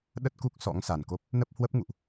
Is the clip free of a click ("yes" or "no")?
yes